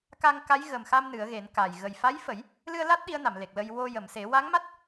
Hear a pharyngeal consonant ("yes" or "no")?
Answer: no